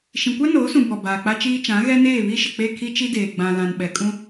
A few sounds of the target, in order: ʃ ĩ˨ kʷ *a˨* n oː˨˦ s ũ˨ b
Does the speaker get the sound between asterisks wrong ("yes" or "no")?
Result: yes